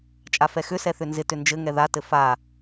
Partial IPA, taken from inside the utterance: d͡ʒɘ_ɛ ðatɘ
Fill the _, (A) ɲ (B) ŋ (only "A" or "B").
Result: B